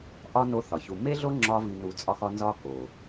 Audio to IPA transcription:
ʔ ɒ˦ n o˦ θ ɒ˨ ç u˧ m e˦ ɮ o˦ ŋ͡ǁ ɒ˧ v i˨ n u˨ t͡sʼ ɒ˧ x ɒ˧ n z ɒ˦ k o˨

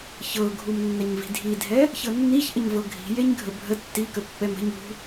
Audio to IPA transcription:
ç ɤ ɡʱ u m nː æ ɲ v i̤ dʱ i dʱ ɛ | ç ɤ nː i ç ʔ ə ɲ v ɤ ɡʱ i̤ j e ɲ ɡʱ ə bʱ ə tː i k ə pː ɛ m ə̤ ɲ ṳ

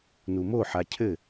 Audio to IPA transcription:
n u m o ħ a cʰ ɘ

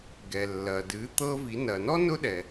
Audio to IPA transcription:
ɡ ɛ˩ lː ɐ˩ d ɨ˩˧ t̪ ɤ˧ v i˩˧ n ɐ˩ n ɔ˥ n ʊ˥ ɗ ɛ˩

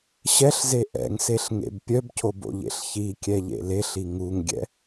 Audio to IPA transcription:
ɕ ɛ ɬ z e ʔ ɛ̰ ŋ s e ɬ ŋ ḛ b pʲ œ b cʰ o b o̰ ʎ ḛ ɬ ç i kʲ ɛ ʎ ḛ l e ɬ i ŋ u ŋ ɡʲ ɛ̰

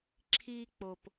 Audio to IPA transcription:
ǁʰ i˦ k͡p o˦ p

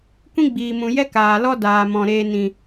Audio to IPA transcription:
kʷ ĩ˦ ɡ͡b iː˨ m ũ˨ j ɛ˦ k aː˨ l ɔ˦ d aː˨ m ɔ̃˨ ɾ eː˧ n ĩ˨

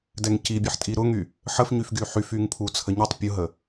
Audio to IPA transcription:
d ɛ ŋ c i bʲ ə ħ tʼ i ɾ ʊ ŋ y | ħ ə f ɲ y f ɡ y ħ y f y ŋ pʰ u t͡sʰ ə ɲ i tˤ pʲ ʊ ɦ ə

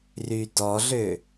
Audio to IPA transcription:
r y d ɔ ɮ ø

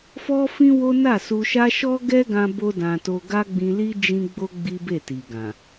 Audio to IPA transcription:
f ɔ˦ f ĩ˦ w o˦ n a˦˨ s u˧ ʃ a˦ ʃ ɔ˦ ɡ ɛ˦ ɡ ã˧ b o˦ d ã˧ t o˧ ɡ a˦ ɡ͡b ĩ˧ l i˦ d͡ʒ ĩ˧ ɡ͡b o˧ ɡ͡b i˦ b e˦˨ t i˨ ɡ ã˨

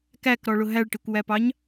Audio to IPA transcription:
k æ k ɾ ɔ ɭ ʊ ɦ æ ɭ ʈ i kʷ w æ p ɑ ɲ

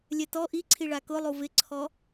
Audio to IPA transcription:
lʲ ɛ t ɔ ʔ i ǀʰ i ɭ a k ʊ lˠ u v ɪ ǀʰ ɔ

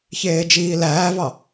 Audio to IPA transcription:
ç eː d͡ʒ iː l æː v ɑ

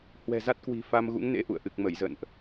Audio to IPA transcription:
h w ɛ̤˨˩ z a˦˥ t̚ k w i̤˨˩ f a˧ m ɣ ṵ˧˥ ŋ n ḛ˧˥ ʔ ṵ˧˨ ə̯ ʔ ɨ˨˩ k̚ m ə˧˩ j z ə̰˧˨ n ʔ

